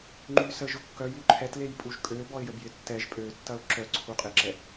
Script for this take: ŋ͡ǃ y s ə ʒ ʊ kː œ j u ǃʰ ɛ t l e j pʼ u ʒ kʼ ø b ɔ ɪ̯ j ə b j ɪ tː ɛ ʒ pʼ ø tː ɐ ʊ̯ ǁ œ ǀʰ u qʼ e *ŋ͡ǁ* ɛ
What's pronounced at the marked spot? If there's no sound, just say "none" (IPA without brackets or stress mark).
ǁ